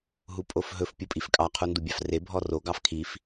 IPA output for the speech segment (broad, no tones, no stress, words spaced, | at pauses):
ɦupʼofɦɵf pʲupʼifkʼɑ qʰundubʲɑfre bʱɔro ɡɑfkʰif